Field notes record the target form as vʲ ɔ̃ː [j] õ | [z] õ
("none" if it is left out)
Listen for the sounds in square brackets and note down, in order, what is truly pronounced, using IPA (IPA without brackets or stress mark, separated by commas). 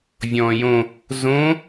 j, z